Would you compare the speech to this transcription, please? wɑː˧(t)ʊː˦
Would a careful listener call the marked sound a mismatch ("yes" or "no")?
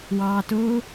no